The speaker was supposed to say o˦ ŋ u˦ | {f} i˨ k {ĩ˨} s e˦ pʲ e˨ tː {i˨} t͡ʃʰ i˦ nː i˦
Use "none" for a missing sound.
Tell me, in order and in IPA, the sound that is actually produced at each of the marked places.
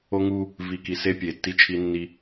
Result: v, i˨, i˦

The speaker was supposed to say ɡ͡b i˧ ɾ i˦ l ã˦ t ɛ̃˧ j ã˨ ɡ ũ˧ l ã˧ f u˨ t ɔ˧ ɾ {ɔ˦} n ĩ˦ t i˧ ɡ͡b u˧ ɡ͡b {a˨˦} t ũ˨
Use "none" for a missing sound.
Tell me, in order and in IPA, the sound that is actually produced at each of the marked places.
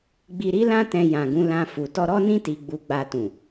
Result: ɔ˦, a˧

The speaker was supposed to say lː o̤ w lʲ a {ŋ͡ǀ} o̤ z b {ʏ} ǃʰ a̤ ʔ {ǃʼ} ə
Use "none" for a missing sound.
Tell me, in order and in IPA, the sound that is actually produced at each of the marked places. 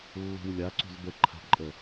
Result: ǀ, ə, ǃʼ

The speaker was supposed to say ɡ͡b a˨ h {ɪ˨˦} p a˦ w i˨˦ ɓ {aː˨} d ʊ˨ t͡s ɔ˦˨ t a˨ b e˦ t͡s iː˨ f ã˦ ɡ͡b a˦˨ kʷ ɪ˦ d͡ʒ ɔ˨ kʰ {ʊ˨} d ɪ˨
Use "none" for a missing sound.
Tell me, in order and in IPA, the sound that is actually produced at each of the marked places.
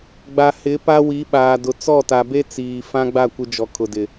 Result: ɪ˨˦, aː˨, ʊ˨

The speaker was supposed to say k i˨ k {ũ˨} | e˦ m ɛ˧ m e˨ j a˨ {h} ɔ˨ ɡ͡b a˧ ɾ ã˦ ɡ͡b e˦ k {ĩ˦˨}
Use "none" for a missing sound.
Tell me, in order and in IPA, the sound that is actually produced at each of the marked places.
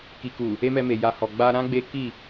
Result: u˨, h, i˦˨

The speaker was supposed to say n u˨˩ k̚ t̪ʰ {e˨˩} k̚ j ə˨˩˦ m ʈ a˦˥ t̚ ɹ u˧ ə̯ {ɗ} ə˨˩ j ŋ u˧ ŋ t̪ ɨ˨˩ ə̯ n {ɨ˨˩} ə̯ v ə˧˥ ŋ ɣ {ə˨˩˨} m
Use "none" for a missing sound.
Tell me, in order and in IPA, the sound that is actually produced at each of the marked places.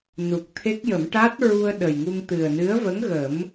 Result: e˦˥, ɗ, ɨ˧˥, ə˨˩˦

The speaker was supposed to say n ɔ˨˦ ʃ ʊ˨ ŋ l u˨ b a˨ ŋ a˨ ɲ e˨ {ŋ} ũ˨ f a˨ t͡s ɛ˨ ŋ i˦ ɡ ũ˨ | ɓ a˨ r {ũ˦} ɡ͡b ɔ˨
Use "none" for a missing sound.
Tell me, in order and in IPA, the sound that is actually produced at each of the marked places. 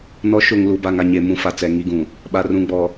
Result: m, ũ˨

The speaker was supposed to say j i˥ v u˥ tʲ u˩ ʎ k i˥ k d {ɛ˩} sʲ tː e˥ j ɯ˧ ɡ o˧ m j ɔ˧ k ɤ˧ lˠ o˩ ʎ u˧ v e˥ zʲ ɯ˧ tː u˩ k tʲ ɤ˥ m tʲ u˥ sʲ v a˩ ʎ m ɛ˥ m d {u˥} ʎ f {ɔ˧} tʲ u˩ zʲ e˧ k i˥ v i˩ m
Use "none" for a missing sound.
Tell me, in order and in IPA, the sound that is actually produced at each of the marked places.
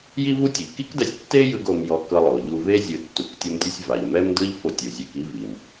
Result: ɛ˧, ɯ˥, o˧

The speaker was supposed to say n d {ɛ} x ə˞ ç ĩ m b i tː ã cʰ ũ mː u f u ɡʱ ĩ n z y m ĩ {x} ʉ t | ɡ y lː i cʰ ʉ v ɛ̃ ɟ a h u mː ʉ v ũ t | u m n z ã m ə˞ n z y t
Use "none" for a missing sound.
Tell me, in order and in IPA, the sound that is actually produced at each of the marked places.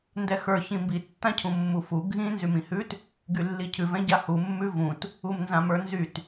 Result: ɛ, h

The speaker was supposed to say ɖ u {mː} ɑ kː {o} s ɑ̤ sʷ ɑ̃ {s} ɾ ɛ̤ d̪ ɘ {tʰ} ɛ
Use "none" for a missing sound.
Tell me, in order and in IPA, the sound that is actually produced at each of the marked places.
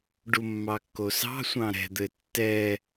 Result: mː, o, none, tː

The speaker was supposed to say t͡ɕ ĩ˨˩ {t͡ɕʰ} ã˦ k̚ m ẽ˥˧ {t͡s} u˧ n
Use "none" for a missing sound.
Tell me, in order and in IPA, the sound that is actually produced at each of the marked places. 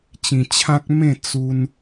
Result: t͡ɕʰ, t͡s

